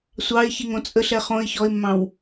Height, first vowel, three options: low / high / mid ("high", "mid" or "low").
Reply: low